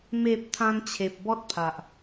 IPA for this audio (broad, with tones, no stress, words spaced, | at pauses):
me˨p̚ t̪ʰã˧nt͡ɕʰe˨p̚ bɔ˦t̚pʰa˨ʔ